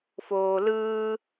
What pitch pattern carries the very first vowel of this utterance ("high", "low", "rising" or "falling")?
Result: low